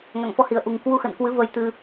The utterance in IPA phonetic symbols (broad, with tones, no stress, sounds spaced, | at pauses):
ŋ a̰˧˨ ŋ f ɔ˧ h i˨˩ ə̯ ʔ u˨˩ ŋ k w u˧ x ə̰˧˨ n k w ɨ˨˦ v ə˧ j t̪ ɨ˧